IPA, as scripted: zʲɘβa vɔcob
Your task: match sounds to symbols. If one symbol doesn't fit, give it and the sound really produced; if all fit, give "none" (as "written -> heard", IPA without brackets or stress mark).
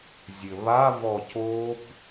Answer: none